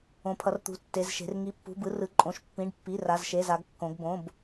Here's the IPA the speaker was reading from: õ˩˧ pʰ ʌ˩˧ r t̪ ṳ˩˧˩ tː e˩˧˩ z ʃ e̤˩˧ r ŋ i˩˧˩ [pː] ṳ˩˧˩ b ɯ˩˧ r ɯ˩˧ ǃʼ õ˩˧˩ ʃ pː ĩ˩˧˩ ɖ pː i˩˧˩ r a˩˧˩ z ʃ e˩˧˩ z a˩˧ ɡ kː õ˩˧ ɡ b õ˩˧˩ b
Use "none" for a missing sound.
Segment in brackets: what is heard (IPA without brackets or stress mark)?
pː